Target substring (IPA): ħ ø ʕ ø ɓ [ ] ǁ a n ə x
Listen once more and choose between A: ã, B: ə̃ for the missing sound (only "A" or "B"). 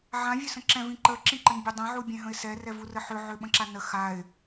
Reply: B